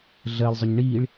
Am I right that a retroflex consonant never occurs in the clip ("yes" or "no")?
no